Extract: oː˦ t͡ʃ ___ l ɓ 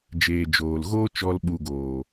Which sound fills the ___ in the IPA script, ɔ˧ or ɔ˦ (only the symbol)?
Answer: ɔ˧